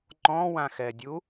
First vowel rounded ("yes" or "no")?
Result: yes